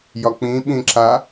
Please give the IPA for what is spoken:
jɒk͡pĩ ɓĩǁa

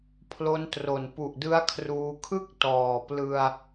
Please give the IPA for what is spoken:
pʰlo˦˥ntro˨˩n pu˨˩ʔdɯ˦˥a̯kʰruː˧kʰɯ˥˩k̚ tɔː˨˩plɯ˧a̯

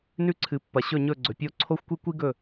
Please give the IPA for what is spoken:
nʉ˦ǀʰɨ˨ pːɐ˨ɕɵ˦˨ ɲɵ˦˨ɡ͡ǀɵ˨pʲo˦ ǀʰo˦xʷkʷi˦kʷi˦ ɡɵ˦˨

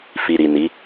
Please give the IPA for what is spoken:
fi˨ɾi˨ ni˨˦

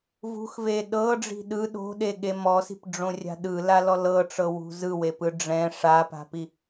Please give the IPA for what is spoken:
vṳxve ɗɤɖ͡ʐi̤ ɗɯ ɗo̤ɗeɠe mɔsi̤pɖ͡ʐõrʲa̤ ɗɯlalɔ lɤʈ͡ʂɤwṳ zɯwepɯ ɖ͡ʐɛ̃ ʂapa̤pi

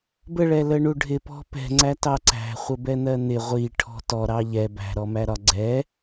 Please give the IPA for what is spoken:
bəɭɛləɳu ɖʱɪpɔ̤ pɛ̤ŋ͡ǀætɑ ǀæ̤χʷəbɛn̪ɜ n̪ɪ ʁʷiʈʰɔ̤ tɔɾɑ ʎɛ bæ̤ɾɔmæɾɒ ɡ͡ǀɛ

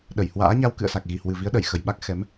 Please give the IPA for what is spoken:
ɗə˧˩jhwa̰ː˧˥ ɲa˧wkɨ̰˧˨ə̯sa˨˩k̚ ɣi˨˩hwɨ˨˩vi˨˦ə̯ ɗə˧˩jxə˨˩jɓa˦˥k̚ xɛ˨˦m

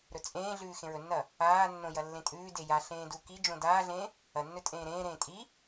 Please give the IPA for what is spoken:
ɾɵt͡sʼẽːɮʉː xẽɹɵnːɐ | aːnːõ jɐlːẽtʼʉːde jaɬẽː du kid͡ʒõ daːɮẽ | ɐnːɵ tʼẽːɾẽːɾẽː tʼi

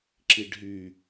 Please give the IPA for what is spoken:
ǁiɖɦy

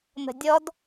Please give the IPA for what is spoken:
n̪ə̤dʲɔd

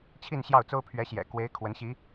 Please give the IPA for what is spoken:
t͡ɕʰi˥˧nɕjɑ˥˩ʊ̯t͡so˥ʊ̯ pʰɥɛ˧˥ɕjɛ̰˨˩ kwe˧˥ɪ̯ kʰwə˧˥nɕi˧˥

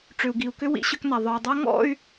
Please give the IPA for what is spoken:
ʈ͡ʂʏ˨u̯ɡi˨u̯kʏ˦ wḭ˦ɕʏ˦kna˨ ðˤœ˨y̯dˤa˦ ŋɔ̰˦˨y̯

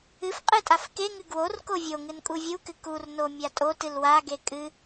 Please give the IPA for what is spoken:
ɨfqʼɨ tʼafkeŋɨ ɡwor kovʲoŋɨn kʼuvʲukɨ kurno mʲatʼotɨl waɡe kʼɨ

